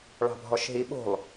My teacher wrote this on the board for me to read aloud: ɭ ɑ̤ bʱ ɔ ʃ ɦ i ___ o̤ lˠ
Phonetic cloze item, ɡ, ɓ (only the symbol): ɓ